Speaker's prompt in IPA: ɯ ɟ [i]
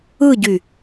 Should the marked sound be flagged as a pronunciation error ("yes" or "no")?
yes